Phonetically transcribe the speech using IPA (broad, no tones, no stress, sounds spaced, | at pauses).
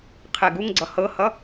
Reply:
qʰ ɛ ɡ u ŋ ɡ͡ǀ ʌ h ɤ h ʌ